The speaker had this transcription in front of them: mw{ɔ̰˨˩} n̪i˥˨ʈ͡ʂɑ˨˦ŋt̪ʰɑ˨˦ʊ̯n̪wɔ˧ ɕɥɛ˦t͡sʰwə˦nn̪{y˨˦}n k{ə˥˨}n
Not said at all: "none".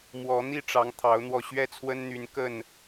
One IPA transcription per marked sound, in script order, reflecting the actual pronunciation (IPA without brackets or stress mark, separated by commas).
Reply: ɔ˨˦, y˨˦, ə˥˨